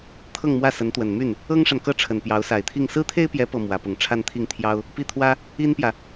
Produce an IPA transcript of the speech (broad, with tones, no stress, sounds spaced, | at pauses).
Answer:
t̪ʰ ɤ˥˧ ŋ m w ä˥˩ s ə˧˥ n t̪ w ə˨˩ n m y˥˩ n | ɤ˥ ŋ ʂ a˨ n k ɤ˥˩ ʈ͡ʂʰ ə˨˩ n p j ɑ˧˥ ʊ̯ s a˨˩ ɪ̯ t̪ʰ i˥˩ ŋ s ɹ̩˥ t̪ʰ e˥ ɪ̯ p j ɛ˧˥ p ɤ˨˩ m w ä˧˥ p ʊ˨˩ ŋ ʈ͡ʂʰ a˥˧ n t̪ʰ i˥˩ ŋ t̪ʰ j ɑ˥ ʊ̯ | p i˥˩ t̪ʰ w ä˥ | i˥ n p j ä˨